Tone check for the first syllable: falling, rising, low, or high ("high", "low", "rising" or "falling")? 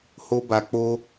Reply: high